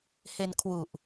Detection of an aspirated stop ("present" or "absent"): present